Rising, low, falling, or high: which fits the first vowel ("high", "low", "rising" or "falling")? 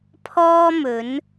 high